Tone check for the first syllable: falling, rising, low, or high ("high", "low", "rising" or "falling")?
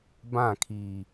falling